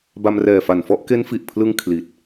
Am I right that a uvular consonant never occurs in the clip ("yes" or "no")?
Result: yes